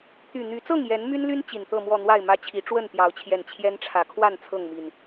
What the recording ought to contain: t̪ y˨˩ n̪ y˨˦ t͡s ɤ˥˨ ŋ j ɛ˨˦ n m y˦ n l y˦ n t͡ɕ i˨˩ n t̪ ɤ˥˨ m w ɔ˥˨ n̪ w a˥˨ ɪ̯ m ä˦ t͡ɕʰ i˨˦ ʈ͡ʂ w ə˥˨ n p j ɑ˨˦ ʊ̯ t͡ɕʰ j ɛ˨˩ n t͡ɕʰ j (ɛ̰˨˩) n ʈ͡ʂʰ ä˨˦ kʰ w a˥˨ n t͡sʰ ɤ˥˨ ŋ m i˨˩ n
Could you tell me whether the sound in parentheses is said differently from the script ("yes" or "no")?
yes